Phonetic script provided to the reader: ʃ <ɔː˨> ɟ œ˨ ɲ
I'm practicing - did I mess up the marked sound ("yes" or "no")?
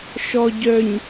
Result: yes